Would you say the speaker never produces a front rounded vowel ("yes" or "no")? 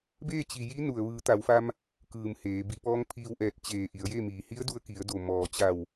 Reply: yes